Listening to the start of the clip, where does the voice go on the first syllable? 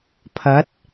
rising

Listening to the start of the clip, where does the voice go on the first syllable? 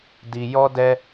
high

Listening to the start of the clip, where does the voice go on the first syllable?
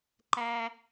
high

